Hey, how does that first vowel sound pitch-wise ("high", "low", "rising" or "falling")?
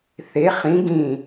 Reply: rising